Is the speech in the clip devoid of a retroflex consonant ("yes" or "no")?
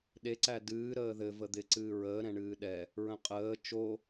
no